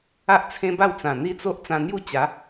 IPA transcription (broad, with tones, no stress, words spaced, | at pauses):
a˦ʔt͡sʰẽ˦ba˥˧wt͡sã˨˩ n̪i˦t͡so˦ʔ t͡sã˧n̪ju˥˧t͡ɕa˨˦